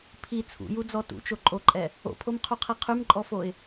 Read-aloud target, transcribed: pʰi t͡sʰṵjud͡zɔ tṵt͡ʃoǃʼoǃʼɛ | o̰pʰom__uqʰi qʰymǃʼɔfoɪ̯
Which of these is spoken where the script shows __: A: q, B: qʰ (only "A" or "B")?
B